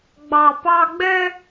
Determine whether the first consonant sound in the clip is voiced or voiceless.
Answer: voiced